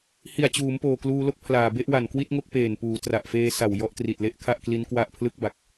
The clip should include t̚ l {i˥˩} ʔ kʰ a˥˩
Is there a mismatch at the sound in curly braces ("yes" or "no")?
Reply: yes